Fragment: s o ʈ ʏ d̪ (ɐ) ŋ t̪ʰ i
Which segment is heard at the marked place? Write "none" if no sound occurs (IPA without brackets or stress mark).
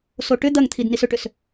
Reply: ɐ